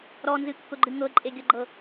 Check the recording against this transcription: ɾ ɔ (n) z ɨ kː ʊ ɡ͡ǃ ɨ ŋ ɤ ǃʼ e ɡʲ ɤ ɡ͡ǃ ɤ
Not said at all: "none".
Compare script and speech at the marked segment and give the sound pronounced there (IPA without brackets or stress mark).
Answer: n